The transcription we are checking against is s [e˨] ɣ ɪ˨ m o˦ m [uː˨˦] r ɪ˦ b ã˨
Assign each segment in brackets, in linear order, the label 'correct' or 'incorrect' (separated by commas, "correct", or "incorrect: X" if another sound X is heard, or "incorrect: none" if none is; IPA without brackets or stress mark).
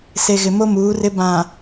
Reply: correct, correct